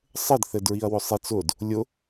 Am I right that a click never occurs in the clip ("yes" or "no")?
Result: yes